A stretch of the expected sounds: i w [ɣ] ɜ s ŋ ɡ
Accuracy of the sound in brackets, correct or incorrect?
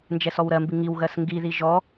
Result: correct